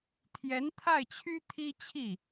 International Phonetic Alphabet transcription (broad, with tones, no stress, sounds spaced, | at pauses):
t̪ʰ j ɛ˧˥ n t̪ʰ a˥˩ ɪ̯ t͡ɕʰ y˥ t̪ʰ i˥ t͡ɕʰ i˥˩